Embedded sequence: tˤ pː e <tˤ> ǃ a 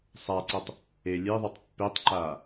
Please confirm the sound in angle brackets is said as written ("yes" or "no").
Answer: yes